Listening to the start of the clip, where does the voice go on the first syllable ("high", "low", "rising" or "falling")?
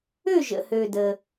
falling